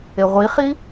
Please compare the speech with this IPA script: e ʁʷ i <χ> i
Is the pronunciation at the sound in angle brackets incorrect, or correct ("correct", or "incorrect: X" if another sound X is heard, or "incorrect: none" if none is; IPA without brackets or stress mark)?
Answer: correct